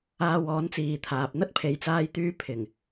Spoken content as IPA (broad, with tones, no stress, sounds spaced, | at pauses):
aː˧ w ɔː˨˥ n t͡s iː˨ t̪ʰ aː˨ p̚ n̪ ɐ˥ t̚ pʰ e˨ j t͡s aː˧ j t̪ yː˧ pʰ ɪ˨˩ ŋ